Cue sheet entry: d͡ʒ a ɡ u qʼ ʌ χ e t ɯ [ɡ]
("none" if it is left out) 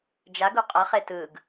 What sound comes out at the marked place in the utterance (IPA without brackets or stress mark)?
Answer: ɡ